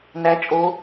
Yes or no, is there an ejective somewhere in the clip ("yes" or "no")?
yes